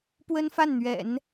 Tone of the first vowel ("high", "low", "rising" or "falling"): high